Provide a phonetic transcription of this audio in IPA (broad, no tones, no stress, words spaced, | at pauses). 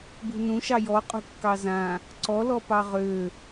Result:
bṳnũʃɑ jɔqʼṳkːɑ zã | ǀɔlɔ pɑʁø